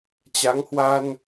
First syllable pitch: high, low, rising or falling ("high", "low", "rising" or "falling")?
rising